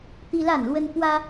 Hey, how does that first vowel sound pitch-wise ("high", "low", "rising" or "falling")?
high